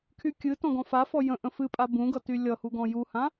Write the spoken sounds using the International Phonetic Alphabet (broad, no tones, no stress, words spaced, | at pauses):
kʰykʲɨtɔ̃ ɡɔ̃fafɔ jə̃ ʔə̃fɨpʼa bũɡʌ tylʲʌhu ɡɔ̃juhã